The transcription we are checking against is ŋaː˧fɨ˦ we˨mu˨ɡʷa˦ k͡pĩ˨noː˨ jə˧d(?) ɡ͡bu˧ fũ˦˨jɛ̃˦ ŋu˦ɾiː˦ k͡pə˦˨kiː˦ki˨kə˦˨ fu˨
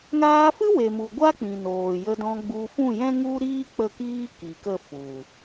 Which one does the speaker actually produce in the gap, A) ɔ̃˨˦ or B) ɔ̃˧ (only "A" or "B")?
B